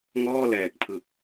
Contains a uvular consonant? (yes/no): no